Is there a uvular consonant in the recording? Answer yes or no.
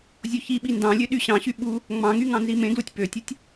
no